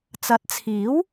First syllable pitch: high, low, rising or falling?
rising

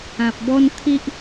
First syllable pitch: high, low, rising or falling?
low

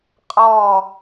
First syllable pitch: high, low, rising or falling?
falling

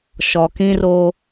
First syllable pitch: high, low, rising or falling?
low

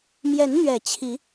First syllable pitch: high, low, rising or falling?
rising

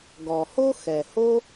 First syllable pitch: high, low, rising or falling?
low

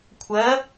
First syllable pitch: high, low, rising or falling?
rising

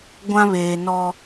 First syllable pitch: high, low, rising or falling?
high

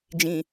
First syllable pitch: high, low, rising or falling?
low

